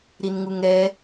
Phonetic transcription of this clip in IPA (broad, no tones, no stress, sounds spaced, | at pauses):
ɾ i n ŋ u ŋ ɾ ɛ